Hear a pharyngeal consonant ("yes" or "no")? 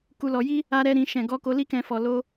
no